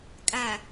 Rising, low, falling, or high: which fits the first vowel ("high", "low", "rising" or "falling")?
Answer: low